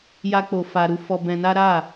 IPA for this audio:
ja˦k͡po˧fa˧ɾu˦ fɔ˧bɛ̃˧na˦ ɾa˦˨

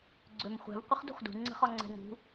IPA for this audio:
ɡ͡ǀømχʷɛ̤v qʷəχdṳχdṳ ŋ͡ǀə̤χɒŋ͡ǀɛ̤ŋṳ

